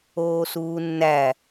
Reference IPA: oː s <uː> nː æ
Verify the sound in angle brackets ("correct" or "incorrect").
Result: correct